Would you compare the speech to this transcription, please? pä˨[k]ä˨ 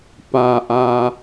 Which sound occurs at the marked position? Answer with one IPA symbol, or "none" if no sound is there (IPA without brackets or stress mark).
ʔ